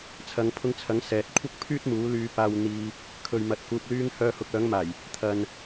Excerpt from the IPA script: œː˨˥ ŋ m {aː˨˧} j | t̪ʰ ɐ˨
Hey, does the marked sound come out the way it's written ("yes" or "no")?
no